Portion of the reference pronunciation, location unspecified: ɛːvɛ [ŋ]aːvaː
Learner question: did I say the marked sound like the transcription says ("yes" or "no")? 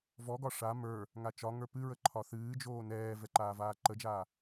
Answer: no